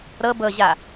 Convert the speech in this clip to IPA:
ɾɤ bɤʑa

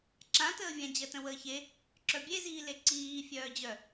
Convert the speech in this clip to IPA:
ǁãtəːvʲã d͡ʑɜtə̃wəːçe | ǁœbʲeziːle ǀiː fʲœːd͡ʑœ

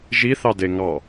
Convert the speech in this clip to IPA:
ʒiθɑde ŋɑ

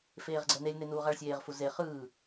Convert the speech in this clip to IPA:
feːʁɡ͡ǀɛnelʲne nuːʁaɭsʲeːʁfu ze χɯː

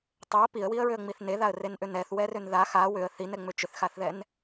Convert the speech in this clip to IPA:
tˤʏə̯ piə̯wiə̯ɹʏə̯ŋ͡miθ neðaə̯renʔʏ nɛθwɛrʏn ða xa wʏə̯ θinɛŋ͡mʏ t͡ʃʏθxaθðɛn

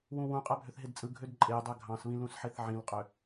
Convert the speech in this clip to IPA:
wũwũ qʼæbʱøθɦedt͡sʼɯ ɡʱødǃʼedˤæ ɡʱɑ̃sβĩ lũsħeθʕĩlqʼø

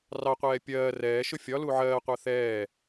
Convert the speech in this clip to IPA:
rɑqʷɛː pʲɜː rɛːʃʊ fʲɒlu ʕɜːqʷɑ θɛː

